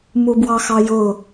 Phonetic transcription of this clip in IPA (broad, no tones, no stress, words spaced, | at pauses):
mubwɑxɑjʊ